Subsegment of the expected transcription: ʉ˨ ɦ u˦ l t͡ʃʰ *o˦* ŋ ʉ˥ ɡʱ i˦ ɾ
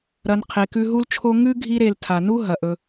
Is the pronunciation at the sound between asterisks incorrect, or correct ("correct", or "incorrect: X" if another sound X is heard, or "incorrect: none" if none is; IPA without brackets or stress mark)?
correct